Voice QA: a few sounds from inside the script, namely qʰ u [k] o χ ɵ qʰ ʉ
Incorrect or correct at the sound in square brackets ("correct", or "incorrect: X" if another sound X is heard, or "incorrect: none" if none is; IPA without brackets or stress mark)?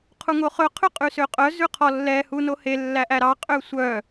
incorrect: ŋ